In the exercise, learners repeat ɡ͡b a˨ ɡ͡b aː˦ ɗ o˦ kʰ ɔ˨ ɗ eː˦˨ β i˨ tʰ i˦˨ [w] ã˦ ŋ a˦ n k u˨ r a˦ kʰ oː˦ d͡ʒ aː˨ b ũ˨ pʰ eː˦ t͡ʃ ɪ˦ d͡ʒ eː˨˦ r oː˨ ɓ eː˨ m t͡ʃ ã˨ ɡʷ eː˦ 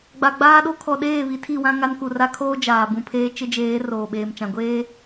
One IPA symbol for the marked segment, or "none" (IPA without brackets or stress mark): w